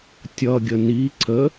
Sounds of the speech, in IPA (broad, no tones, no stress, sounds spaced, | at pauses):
tʲ ʌ ɡʲ ə n i ǀ ə